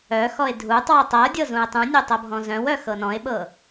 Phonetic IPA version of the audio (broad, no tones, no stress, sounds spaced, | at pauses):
œ x ɔ e̯ dʱ u tˤ w ə tˤ ɤ dʲ ɤ z ũ e̯ tˤ ũ nʲ o tˤ ɤ bʱ ɔ̃ z œ̃ w œ x ɤ n ɔ̃ e̯ ɓ ɤ